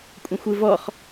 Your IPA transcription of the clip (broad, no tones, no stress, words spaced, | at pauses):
kʷʼə̃xʷɯvɔχ